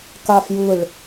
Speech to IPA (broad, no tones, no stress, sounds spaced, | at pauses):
k a f j ɯ ɭ